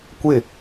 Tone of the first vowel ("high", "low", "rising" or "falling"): falling